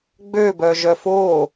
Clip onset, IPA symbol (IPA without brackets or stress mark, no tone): ɡ͡b